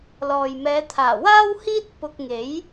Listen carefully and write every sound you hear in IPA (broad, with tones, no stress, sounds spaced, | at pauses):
l ɔː˨ j m ɛː˨˧ t̪ʰ aː˨˩ w aː˥ w h iː˥ t̚ p ʊ˧ k̚ ŋ e˨˥ j